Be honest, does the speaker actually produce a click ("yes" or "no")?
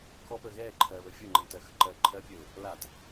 yes